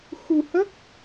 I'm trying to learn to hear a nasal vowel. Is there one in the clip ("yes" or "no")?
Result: no